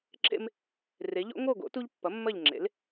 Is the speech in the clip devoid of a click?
no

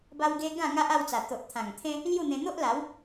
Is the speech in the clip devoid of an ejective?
yes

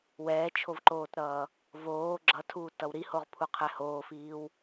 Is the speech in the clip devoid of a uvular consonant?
no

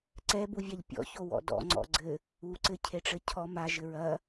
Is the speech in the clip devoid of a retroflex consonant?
no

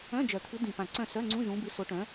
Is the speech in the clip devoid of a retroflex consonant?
no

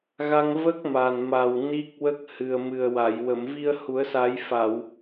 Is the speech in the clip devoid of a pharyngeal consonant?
yes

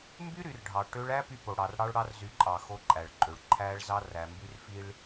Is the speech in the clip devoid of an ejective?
no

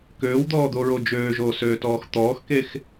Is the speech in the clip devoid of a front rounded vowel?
no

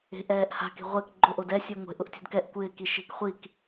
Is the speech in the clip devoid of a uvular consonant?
no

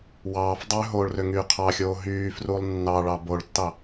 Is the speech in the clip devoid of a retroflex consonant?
no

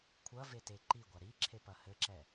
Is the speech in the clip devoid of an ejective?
yes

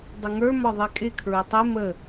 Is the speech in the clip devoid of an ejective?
no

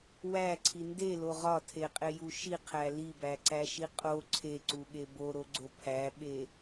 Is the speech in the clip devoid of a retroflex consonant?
yes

